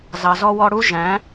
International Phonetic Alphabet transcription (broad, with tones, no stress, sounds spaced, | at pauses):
z ɑ˨ z ɔ˧ w ɔ˧ ɽ u˦ ʒ æ̃˨˦